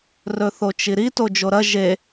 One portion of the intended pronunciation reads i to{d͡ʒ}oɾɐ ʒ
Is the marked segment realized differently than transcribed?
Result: no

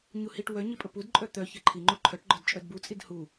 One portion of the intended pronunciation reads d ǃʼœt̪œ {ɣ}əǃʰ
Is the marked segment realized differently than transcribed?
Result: yes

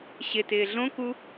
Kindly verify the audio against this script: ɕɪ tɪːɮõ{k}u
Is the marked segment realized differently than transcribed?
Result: no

